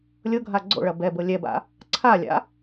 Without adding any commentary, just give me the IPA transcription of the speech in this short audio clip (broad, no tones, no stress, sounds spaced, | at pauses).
lʲ ɤ ɡʱ a ɡ͡ǀ o̰ ɭ ɐ b ɛ b ɤ lʲ ɛ b a̰ | ǀʰ a lʲ a̰